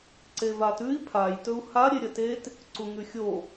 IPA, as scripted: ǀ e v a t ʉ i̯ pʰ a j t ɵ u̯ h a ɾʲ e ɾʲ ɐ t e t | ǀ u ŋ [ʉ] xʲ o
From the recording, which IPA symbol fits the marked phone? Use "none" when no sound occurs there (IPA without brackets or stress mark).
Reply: ʉ